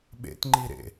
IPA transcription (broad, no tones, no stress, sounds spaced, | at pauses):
ɓ ḛ t ŋ͡ǃ i ɾ ḛ